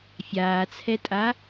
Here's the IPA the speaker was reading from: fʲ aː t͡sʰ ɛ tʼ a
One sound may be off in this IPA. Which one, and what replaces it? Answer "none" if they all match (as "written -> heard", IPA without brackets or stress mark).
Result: none